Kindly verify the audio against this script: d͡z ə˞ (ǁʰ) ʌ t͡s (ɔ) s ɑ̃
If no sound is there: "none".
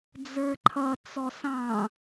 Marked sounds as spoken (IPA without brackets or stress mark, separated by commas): ǃʰ, ɔ